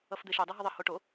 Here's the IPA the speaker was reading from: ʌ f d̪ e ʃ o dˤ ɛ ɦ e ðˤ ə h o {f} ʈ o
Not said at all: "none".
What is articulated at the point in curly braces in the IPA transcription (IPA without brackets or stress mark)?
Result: none